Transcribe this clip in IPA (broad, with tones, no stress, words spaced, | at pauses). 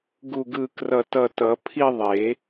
ɡu˧˩ɡɯ˧˩ krʌ˧˩ tʌ˧˩tʌ˨˩˦ pʰi˥˧ðˤe˨˩˦